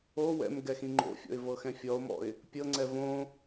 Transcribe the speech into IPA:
o w ɛ̰ m ɡ ɛ x ĩ ŋ͡ǃ o̰ fʲ ɔ̰ ɪ̯ v ɤ x ɛ̃ fʲ ɔ ʊ̯ m ɔ̰ ɪ̯ | pʲ ɤ ŋ͡ǀ ɛ v õ

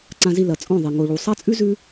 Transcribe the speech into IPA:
ǀ ã˨ z i˨ l ɐ˨ t͡sʼ õ˦˨ ðˤ i˨ ŋ o˨ ɭ u˨ sˤ a˦ t͡sʼ ʉ˦ z ʉ˦

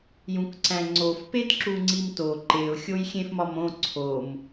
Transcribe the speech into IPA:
j ũ k ǀ æ̃ ŋ͡ǀ o f p e d ǁ u ŋ͡ǀ i m t o ǃ e ʊ̯ xʲ o j xʲ ẽ f m ɒ m õ ǀʰ o m

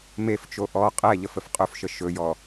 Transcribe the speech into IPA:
m e f t͡ʃ o ʔ ɔ qʼ ɛ ʎ ə f ə f qʼ ɵ f ʃ ə ʃ ɵ j ɔ

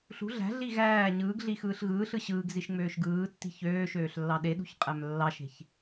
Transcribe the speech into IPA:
ɬ ṳ ɮ æ̤ ɮ i ɣ æː ɲ ɯː ɡ ɮ i x ɯː ɬ ɣ ɯː ɬ ɯ ɕ ɯː ɡ z i ʃ ŋ͡m øː ʃ ɡ ɯː tː i̤ ç øː ʃ øː ɬ lː ɑ ɗ e ɗ ṳ ç qʼ æ m lː ɑ ʃ e̤ ç

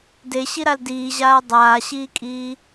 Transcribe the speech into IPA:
d e ɕ i ɾ a l d iː ʑ aː dˤ aː ɕ iː kʼ iː

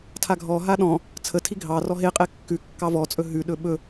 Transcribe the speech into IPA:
tʰ a ɡʱ ɔ ɦ a ɗ ɔ̃ | t͡sʰ ə tʰ i ɡʱ ɑ r ɔ ɦ e qʼ e kː ʉ kː ɑ v ɔ t͡sʼ ɵ ɦ ʉ ɗ ɵ ɓ ɵ

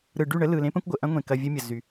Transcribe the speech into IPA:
ɾ ɯ˨ ɖ y˦˨ ɳ ə˦ l ɯ˨ l ẽ˦ p ə̃˦ kʷ ɡʷ ə˨ ʔ ɐ̃˦ ŋʷ ẽ˨ k ɐ˧ vʲ ɘ˦ mʲ ə˨ z y˨

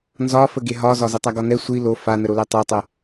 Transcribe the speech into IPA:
n z ɒ f ə ɡ e ɦ ɒ z ɒ z ə tˤ a ɡ ɒ n ɛ sʷ i l o f a n ə ɾ o l ɛ tˤ o tˤ ɛ

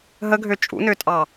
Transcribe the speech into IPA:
ɦ ə ɡʱ ø t͡ʃʼ ṵ n ø tʼ ɑ

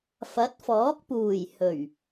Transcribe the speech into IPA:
f ɐ˨˥ t̚ f ɔː˨˥ k̚ p uː˨˩ j h ɵ˨˩ ɥ

